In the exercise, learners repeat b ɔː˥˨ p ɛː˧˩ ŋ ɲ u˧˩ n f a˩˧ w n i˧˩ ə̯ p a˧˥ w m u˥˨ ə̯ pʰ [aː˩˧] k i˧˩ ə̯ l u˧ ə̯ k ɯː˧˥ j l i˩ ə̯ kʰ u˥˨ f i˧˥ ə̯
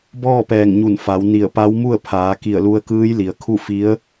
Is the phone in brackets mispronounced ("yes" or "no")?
no